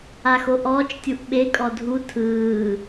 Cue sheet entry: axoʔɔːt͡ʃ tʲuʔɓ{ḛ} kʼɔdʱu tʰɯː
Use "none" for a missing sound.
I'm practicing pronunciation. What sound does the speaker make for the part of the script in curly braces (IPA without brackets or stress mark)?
e